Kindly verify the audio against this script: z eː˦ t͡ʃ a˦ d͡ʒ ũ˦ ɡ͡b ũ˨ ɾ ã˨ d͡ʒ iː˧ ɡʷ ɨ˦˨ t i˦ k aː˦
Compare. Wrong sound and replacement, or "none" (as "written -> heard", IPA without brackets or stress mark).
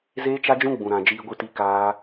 none